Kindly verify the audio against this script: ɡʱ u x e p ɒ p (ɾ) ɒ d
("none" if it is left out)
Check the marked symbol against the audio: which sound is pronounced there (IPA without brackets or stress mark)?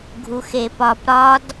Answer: ɾ